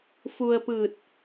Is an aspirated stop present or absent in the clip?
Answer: absent